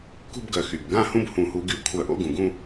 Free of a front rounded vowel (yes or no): no